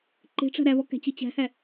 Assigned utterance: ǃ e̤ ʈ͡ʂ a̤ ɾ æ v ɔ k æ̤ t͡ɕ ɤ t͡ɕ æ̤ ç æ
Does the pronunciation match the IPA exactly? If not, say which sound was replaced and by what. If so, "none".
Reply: ç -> h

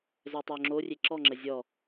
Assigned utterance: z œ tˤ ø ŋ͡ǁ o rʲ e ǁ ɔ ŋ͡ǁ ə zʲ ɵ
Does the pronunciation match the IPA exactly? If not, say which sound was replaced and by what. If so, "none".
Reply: ɵ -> ɔ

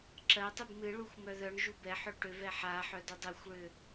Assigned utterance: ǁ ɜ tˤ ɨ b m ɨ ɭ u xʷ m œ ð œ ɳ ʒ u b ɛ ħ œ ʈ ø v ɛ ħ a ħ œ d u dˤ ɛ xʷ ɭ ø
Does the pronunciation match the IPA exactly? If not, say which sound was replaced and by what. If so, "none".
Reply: none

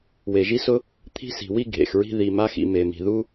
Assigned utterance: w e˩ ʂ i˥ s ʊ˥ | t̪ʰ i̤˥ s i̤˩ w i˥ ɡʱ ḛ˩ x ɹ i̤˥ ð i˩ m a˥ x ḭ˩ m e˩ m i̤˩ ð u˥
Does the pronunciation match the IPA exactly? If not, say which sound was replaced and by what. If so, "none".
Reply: ʂ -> ʒ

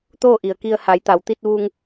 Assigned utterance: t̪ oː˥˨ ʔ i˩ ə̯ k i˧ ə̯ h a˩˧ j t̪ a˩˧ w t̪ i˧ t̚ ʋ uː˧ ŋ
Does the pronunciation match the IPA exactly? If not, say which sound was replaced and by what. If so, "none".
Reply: none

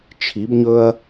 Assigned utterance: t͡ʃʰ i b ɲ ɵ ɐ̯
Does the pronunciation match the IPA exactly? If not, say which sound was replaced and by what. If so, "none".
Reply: none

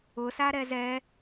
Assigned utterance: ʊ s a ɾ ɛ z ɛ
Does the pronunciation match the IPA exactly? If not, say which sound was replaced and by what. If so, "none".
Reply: none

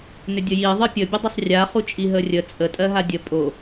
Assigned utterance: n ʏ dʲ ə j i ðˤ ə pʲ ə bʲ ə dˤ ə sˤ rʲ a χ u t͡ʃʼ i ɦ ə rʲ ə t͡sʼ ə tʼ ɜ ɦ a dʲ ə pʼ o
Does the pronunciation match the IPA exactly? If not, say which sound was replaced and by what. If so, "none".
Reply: none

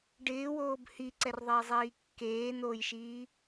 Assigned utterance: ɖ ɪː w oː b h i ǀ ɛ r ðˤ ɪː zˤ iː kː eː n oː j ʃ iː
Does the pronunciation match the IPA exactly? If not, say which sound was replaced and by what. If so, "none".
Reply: none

